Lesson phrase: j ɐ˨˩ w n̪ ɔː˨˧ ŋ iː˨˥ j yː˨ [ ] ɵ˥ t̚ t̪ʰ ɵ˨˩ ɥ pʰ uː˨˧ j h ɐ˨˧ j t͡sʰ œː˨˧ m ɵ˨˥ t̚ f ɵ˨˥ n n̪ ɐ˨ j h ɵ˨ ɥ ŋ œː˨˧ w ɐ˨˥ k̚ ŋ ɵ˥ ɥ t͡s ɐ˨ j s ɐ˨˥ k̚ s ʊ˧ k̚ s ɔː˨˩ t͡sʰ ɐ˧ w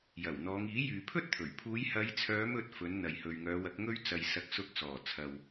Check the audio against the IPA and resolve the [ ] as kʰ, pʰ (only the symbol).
pʰ